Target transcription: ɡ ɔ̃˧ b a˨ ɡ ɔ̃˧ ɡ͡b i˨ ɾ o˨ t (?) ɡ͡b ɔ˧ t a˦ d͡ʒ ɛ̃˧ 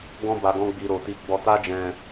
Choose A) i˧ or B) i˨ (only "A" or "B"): A